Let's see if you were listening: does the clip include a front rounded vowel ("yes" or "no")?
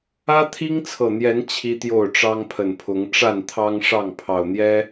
no